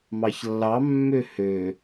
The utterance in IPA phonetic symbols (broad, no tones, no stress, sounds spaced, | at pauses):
m ɑ ç lː ɑ mː ø h ø